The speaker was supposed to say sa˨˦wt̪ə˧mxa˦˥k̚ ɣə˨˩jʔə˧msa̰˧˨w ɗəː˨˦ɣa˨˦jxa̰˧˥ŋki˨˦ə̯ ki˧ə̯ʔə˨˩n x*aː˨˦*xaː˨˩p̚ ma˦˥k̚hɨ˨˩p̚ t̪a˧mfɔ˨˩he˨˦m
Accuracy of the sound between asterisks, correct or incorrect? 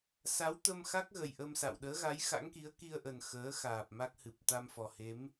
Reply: incorrect: əː˨˦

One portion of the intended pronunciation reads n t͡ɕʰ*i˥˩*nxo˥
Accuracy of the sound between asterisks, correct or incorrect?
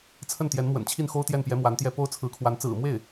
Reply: correct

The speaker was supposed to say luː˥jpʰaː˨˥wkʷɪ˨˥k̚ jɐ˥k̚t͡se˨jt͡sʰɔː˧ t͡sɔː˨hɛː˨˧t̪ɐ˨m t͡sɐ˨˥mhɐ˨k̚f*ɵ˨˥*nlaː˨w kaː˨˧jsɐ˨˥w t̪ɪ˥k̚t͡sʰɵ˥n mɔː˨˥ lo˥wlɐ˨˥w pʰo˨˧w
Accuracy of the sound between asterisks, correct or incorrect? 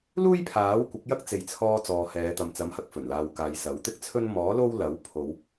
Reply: incorrect: ɵ˨˩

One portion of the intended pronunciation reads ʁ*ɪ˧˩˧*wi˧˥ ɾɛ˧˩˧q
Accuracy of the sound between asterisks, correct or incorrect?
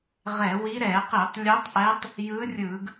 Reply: incorrect: ɛ˧˩˧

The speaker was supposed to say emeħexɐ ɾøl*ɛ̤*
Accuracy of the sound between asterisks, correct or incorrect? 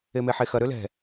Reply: correct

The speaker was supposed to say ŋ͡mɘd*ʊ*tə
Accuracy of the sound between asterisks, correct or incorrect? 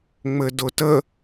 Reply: correct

